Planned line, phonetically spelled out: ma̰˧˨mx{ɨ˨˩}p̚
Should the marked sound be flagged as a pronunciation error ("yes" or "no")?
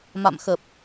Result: yes